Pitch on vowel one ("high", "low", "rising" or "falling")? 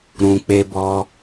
low